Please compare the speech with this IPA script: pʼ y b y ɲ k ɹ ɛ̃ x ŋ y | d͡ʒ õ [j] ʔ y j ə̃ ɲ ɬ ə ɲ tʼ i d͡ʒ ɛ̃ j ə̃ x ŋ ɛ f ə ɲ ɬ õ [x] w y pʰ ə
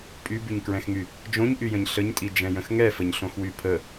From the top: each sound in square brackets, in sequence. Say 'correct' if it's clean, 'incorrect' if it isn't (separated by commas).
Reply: incorrect, correct